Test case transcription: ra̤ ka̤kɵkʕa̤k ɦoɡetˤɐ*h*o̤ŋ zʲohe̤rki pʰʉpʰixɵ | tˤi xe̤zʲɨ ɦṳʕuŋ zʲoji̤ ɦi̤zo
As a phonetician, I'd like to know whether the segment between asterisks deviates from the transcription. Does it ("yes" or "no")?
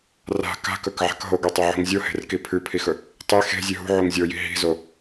yes